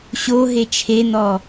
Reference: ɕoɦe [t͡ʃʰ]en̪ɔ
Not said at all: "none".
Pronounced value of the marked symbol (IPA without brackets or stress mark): t͡ʃʰ